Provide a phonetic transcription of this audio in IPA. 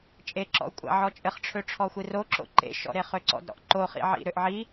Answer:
t͡ʃʼ e ǁ ɔ̰ u̯ kʷʼ a̰ ʕ ɔ t͡ʃʼ ɘ χ ʈ͡ʂʰ ø ʈ͡ʂʰ ɔ xʷ i r o ǁ o̰ ǃ ḛ ʃ ɔ̰ ɾ e χ ø ǀ ɔ̰ d ɾ ɔ̰ ʔ ǃ o χ ḭ ʕ ḭ ɾ ø ʔ ʕ i

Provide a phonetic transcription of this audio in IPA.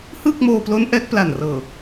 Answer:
h ɯː˥˩ k̚ m oː˧ p l o˦˥ n ʔ ɛː˦˥ k̚ p l a˨˩ n r ɤː˨˩

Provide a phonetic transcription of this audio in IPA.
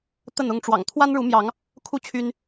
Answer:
t̪ ə˥˨ n ʊ˥˨ ŋ ʈ͡ʂ w ɑ̰˨˩ ŋ t̪ʰ w a˦ n ɻ u˨˦ m j ɑ˨˦ ŋ | kʰ u˥˨ t͡ɕʰ y˦ n

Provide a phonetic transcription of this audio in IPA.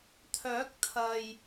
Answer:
t̪ʰ œː˨˥ k̚ t̪ʰ ɐ˨ j

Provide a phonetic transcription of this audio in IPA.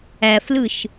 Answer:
æ f l ɯ ʃ

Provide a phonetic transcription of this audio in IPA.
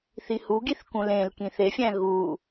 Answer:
θ i h u ɡ i θ k ũ l ẽ l k ĩ θ e fʲ æ̃ ɣ u

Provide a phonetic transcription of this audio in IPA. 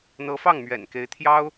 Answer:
n̪ ɤ˧˥ f ɑ˥˩ ŋ m ɥ ɛ̰˨˩ n k e˧˥ ɪ̯ t̪ʰ j ɑ˥ ʊ̯

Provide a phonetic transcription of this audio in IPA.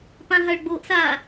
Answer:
p ã ɦ a ɭ ɡ͡b o ʔ s aː

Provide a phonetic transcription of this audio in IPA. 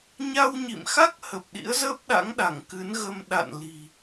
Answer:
ɲ a˧ w ɲ ḭ˧˨ m x a˦˥ k̚ h ə˨˩ p̚ ɗ ḭ˧˥ ə̯ z əː˦˥ p̚ ɗ a̰˧˥ ŋ ɗ a˧˩ ŋ k ɨ˨˦ n ɣ ə˧ m ɗ a̰˧˨ n l i̤˨˩

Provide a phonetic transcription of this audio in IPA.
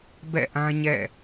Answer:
b ɛ̰˦˨ ʔ ã˦ ɲ ɛ̰˦˨

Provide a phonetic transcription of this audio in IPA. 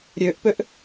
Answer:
ɾʲ ø ʔ p ø ʔ

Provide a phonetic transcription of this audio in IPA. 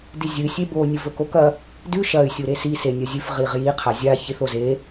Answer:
d i zʲ ɨ sʲ e b o nʲ ɨ v ɵ k o k ɐ | d ʉ ʃ ɐ y̯ sʲ u ɾ e s i s e nʲ ɐ zʲ ʉ f ʁ i ʁ j i qʰ a zʲ a ç i θ o z e

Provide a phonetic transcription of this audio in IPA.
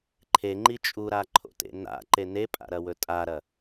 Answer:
ǃʰ e ŋ͡ǃ i t͡ʃʼ u ɾ a ǃʰ o̰ t ḛ n a̰ ǃ e n e pʼ a̰ ɾ ɐ w ɵ tʼ a ɾ ɐ

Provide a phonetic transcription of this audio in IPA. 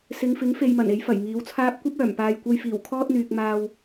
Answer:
s ɪ˨˧ ŋ f ɪ˨˥ ŋ f e˨ j m ɐ˨˩ n e˨˥ j f ɐ˨˩ j ŋ iː˨˥ w t͡sʰ aː˥ p̚ kʷ ɐ˥ p̚ œː˨˩ m p aː˨ j kʷ ɐ˧ j f iː˨˩ w kʰ ɔː˥ t̚ n̪ yː˨ k̚ m aː˨ w

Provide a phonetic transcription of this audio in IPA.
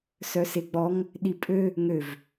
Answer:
s œ s e ɡ͡b ɔ ŋ | ɗ i pʼ ø | ŋ ø v

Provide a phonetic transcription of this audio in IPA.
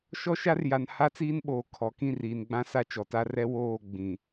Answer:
ʃ ɔ˦ ʃ a˦ r j a˨ n h a˦ t͡s iː˦ n ɓ oː˨ kʰ ɔ˨ k ĩ˦˨ r iː˨ n ɡ͡b ã˦ s a˦ t͡ʃ ɔ˨ t a˦ r ɛ˦ w oː˦˨ ɡ͡b ĩ˨

